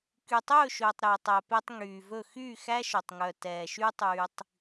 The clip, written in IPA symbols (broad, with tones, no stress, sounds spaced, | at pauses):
k y˨ tˤ ɵː˦˨ ʃ ɵː˨ tˤ ɾ ɵː˨ tˤ æ˨ p e˧ tˤ ŋ yː˨ v ɵ˦˨ x yː˦˨ x æ˦ ʃ ɵ˨ tˤ ŋ œ˨ t ɛː˨ ʃ yː˦ tˤ yː˧ tˤ